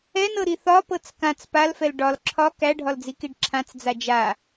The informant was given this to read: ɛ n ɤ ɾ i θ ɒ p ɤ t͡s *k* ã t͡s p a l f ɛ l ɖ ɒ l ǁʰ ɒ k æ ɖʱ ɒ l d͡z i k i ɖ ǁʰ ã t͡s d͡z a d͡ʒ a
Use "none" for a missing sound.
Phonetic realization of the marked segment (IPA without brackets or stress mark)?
k